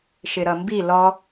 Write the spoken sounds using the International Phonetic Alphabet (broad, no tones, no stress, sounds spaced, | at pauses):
ʃ ɪ ɾ ʌ m b i l ɔ